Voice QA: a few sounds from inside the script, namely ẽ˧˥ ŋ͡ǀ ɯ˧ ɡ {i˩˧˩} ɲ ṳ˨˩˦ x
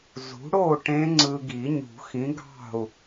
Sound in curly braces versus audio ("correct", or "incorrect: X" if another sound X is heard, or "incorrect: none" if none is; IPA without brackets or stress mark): incorrect: i˨˩˦